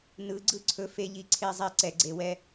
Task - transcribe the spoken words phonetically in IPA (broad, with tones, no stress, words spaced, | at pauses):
nɯ˨˦ɡ͡ǀɯ˦ǀʰɵ˧ fe˧ʎi˧ ǀʰe˧zˤe˧ ǀɛ˨ɡ͡ǀe˨wɛ˧